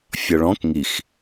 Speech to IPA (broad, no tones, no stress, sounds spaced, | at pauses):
fʲ ɒ ɭ ɔ̃ k ŋ i x